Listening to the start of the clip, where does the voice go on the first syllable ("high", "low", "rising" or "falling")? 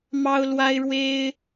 high